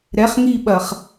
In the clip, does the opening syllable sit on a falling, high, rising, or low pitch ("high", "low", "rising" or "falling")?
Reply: rising